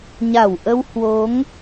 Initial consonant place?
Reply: palatal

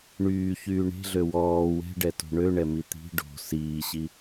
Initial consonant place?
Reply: retroflex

